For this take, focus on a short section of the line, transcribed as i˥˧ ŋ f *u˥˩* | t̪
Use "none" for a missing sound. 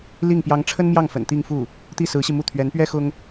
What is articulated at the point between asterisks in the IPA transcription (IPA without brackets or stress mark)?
u˥˩